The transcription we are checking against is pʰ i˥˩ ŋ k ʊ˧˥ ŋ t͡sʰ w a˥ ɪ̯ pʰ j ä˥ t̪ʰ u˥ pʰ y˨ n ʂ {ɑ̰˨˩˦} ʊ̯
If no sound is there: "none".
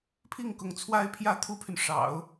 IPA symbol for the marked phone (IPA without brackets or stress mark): ɑ̰˨˩˦